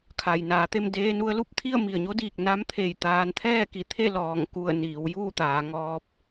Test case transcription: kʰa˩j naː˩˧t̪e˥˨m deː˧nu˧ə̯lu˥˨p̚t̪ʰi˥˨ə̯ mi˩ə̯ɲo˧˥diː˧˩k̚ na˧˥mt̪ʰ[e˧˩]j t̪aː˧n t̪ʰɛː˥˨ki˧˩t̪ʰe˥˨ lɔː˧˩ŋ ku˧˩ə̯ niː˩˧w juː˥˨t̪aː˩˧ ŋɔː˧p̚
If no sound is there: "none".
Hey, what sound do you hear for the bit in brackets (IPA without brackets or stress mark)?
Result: e˧˩